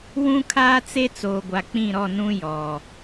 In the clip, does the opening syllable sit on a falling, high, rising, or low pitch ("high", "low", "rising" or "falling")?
high